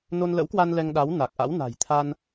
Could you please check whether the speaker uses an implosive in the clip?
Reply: yes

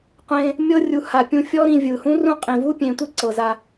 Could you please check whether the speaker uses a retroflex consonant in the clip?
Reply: no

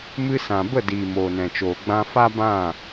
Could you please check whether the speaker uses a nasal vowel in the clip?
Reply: yes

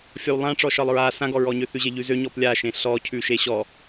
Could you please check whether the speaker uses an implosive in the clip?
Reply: no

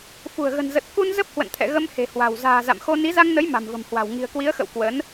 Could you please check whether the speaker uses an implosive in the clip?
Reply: no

